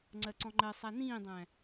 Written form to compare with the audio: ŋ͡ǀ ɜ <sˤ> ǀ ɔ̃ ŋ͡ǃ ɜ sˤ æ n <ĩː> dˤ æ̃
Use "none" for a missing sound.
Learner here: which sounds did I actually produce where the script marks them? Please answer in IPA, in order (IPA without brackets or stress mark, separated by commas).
none, ĩː